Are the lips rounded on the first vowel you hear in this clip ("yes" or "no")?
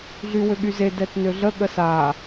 yes